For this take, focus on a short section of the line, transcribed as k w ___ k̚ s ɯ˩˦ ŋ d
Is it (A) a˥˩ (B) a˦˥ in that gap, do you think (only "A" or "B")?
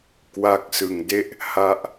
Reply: B